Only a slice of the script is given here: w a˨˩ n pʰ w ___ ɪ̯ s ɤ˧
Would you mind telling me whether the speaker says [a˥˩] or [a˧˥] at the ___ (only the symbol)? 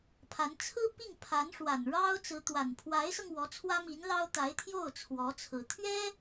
a˧˥